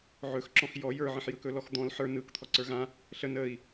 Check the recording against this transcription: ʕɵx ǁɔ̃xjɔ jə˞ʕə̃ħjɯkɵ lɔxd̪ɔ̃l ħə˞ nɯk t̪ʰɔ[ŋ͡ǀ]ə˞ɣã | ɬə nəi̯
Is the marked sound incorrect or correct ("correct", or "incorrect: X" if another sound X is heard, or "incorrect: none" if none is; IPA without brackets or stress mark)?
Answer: incorrect: ǀ